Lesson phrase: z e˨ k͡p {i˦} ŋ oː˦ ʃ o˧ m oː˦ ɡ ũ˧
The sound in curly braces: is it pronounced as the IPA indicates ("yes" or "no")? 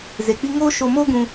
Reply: yes